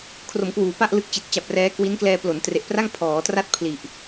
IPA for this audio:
kʰ r o˩˦ m k w uː˩˦ p a˥˩ ʔ l ɯ˦˥ k̚ t͡ɕ i˨˩ t̚ t͡ɕ a˨˩ p̚ r ɛː˦˥ k w i˦˥ n k l ɛː˧ p l o˩˦ n t r e˨˩ ʔ p r a˥˩ ŋ pʰ ɔː˩˦ t r a˥˩ t̚ pʰ l i˨˩ ʔ

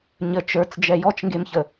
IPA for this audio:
ɲ ə t͡ʃ ə˞ t͡s d͡ʒ ɛ j ɔ t͡ʃ ŋ ɡ e m ç ə

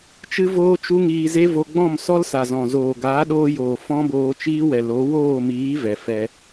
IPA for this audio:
t͡ʃ ɨ˦ v oː˦ t͡ʃ u˦ ŋ iː˧ z e˦ v o˧ ɡ͡b ɔ̃˦˨ m s ɔ˦ l s a˨ z ɔ̃˨ z oː˨ ɡ aː˨˦ ɗ oː˧ j oː˨ f ɔ̃˦ b oː˧ t͡ʃ iː˦ w ɛ˨ l o˨˦ w oː˦˨ m iː˨˦ v ɛ˨ f ɛ˧

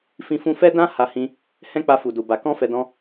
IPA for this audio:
f ĩ˧ f ũ˧ f ɛ˦ d ã˦ h a˧ h ĩ˧ | h ɛ̃˦ k͡p a˧ f u˨ d u˨ b a˨ k ɔ̃˧ f ɛ˧ d ɔ̃˦

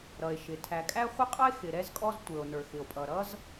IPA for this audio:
ɾ ʌ˩ e̯ ʃ ɪ˩ tʰ æ˩ kʼ æ˥ χʷ ɪ˥ qʼ ʌ˥ e̯ x ɪ˩ ɾ ɛ˥ z kʼ ɔ˥ z tʷ ə˞˩ o̯ n ə˞˩ x ɪ˩ o̯ pʼ ʌ˩ ɾ ʌ˥ z

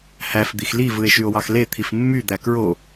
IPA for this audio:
h æ f d̪ i x l i v ɯ e̯ ʃ y o̯ w ɑ x l e t̪ʰ i f mː y d̪ æ k ɹ o

